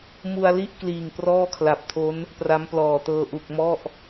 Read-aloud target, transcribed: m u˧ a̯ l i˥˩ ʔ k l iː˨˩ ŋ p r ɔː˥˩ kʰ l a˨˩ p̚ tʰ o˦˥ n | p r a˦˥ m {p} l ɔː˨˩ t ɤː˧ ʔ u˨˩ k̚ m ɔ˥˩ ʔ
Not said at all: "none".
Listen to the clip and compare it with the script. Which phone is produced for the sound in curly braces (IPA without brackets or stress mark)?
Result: p